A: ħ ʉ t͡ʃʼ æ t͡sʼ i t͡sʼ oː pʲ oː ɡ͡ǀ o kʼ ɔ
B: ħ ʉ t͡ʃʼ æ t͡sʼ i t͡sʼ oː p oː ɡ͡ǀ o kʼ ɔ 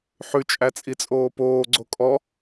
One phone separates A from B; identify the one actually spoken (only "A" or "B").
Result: B